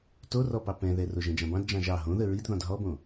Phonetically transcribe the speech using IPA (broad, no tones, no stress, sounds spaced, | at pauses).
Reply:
t o r ɔ p ɑ p ɛ̃ ð ɛ r o ʒ ɛ̃ d͡ʒ ɑ̃ b ɑ̃ d d͡ʒ ɑ̃ ʒ ɑ ɦ õ ð ə ɹ i d ð ɔ̃ d ɦ ɔ b õ